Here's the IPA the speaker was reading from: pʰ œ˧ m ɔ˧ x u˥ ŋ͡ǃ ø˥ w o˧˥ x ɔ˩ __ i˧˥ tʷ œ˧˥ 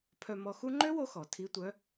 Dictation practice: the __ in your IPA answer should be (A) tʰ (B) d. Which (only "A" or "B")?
A